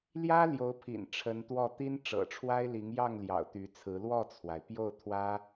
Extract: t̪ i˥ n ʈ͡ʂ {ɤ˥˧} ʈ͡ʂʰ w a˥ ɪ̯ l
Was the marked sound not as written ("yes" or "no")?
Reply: yes